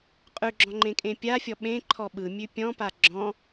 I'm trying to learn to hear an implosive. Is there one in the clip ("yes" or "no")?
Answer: yes